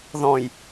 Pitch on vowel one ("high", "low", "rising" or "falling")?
low